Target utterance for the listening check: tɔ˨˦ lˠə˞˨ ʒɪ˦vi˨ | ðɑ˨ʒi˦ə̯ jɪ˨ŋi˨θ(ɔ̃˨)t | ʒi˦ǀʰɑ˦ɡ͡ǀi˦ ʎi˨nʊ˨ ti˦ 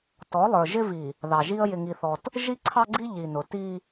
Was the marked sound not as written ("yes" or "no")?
yes